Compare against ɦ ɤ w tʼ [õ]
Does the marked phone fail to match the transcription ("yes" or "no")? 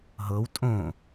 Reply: no